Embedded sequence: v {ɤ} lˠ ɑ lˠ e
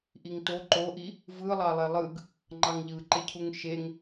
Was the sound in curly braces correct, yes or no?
no